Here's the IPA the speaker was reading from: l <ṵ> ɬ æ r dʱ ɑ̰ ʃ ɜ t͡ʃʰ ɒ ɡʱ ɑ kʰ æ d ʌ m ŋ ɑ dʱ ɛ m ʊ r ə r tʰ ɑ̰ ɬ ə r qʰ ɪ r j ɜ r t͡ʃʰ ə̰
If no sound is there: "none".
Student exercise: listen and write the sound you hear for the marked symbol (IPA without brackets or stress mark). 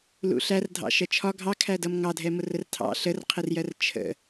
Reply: ṵ